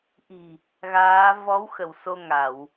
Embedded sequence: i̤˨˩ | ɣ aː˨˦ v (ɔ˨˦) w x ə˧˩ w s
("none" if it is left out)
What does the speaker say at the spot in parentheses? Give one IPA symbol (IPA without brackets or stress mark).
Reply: ɔ˨˦